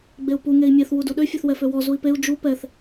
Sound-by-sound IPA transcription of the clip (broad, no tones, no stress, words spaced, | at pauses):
ɡ͡beu̯pu ŋei̯mʲeθ wuduɗø fʲøθwɛføwɔ zui̯peu̯ d͡ʒu pɛθ